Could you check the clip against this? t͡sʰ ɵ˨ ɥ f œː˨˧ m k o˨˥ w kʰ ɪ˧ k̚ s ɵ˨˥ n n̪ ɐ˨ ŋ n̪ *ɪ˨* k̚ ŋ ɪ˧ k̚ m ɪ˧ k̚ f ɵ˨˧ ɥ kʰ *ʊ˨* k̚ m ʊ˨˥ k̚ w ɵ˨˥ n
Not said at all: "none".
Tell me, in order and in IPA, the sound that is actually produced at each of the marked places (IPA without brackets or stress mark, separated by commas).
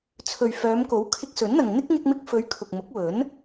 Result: ɪ˥, ʊ˨